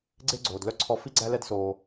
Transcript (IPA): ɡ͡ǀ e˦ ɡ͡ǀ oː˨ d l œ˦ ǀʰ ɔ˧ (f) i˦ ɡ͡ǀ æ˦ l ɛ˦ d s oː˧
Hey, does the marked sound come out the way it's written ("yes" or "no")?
yes